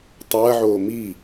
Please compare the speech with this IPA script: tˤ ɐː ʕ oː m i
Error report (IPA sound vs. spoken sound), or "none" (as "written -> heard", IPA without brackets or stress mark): none